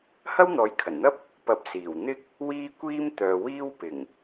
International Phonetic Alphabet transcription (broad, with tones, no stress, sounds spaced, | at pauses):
h ɐ˥ w n̪ ɔː˨˥ j kʰ ɐ˨˩ n n̪ ɐ˥ p̚ | p ɐ˨˥ p̚ s iː˨˩ w n̪ ɪ˥ k̚ | w iː˥ kʷ iː˥ m t̪ œː˨ w iː˥ w p ɪ˨˩ ŋ